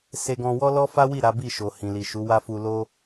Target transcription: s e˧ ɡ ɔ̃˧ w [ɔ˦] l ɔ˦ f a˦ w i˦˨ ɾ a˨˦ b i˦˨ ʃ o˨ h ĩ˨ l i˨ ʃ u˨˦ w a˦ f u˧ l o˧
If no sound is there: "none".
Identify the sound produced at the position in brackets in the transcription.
ɔ˦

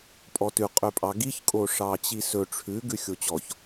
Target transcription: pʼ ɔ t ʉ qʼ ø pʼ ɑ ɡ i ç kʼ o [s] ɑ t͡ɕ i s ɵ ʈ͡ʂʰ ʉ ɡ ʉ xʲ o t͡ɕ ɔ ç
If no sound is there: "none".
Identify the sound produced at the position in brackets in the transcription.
ʂ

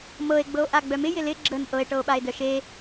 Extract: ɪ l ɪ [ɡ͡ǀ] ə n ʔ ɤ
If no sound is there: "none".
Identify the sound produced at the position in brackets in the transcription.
ɡ͡ǁ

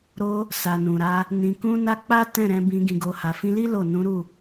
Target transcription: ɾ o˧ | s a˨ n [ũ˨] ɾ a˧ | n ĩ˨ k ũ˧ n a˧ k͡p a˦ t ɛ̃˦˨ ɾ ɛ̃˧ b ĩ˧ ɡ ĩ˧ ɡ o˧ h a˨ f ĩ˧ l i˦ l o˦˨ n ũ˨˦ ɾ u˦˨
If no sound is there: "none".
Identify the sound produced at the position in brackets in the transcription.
ũ˨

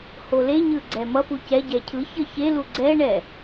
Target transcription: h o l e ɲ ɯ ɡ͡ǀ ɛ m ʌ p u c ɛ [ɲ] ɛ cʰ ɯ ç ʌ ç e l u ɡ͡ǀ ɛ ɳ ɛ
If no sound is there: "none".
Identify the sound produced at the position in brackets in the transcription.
ɟ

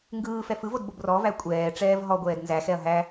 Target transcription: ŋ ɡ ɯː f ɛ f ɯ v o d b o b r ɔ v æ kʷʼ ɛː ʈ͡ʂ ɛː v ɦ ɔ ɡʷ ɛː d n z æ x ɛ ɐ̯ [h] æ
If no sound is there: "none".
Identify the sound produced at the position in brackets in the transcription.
ɦ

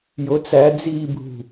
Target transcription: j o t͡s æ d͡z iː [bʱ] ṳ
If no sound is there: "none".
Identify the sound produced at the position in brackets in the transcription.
bʱ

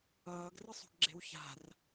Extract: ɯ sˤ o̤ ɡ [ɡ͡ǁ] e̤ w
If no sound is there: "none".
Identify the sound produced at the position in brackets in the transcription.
ɡ͡ǁ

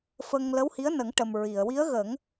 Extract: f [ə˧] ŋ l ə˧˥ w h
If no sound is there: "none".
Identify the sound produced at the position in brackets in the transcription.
ə˧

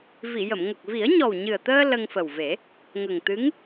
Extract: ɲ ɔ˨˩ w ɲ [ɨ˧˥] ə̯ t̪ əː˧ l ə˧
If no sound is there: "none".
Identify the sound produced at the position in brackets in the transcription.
ɨ˨˩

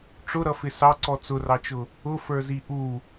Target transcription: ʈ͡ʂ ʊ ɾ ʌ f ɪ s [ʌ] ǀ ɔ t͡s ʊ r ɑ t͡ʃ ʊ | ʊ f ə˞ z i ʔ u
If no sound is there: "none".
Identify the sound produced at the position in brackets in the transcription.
ɑ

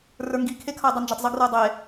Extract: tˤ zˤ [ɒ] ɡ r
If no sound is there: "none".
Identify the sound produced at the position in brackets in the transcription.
ʌ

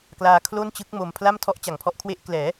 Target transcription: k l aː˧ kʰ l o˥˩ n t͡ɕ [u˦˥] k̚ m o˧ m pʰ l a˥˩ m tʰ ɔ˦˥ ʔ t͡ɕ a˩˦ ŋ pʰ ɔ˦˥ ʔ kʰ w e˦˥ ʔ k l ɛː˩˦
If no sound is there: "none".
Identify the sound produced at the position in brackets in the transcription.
ɯ˦˥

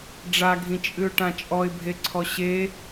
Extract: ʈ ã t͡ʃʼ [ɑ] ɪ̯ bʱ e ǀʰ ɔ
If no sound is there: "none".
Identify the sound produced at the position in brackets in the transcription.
ɔ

